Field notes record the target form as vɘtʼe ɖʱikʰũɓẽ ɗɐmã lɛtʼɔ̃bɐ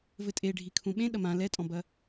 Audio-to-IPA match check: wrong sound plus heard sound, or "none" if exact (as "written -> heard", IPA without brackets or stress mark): none